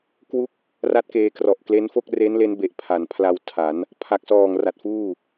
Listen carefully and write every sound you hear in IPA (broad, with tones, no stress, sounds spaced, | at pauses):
k w u˦˥ k̚ | r a˥˩ t̚ k eː˧ k r ɔ˨˩ ʔ k l e˦˥ n f o˥˩ k̚ r e˦˥ n l e˦˥ n b e˨˩ ʔ pʰ a˩˦ n pʰ l a˧ w tʰ a˩˦ n | pʰ a˨˩ k̚ s ɔː˨˩ ŋ r a˨˩ t̚ f uː˥˩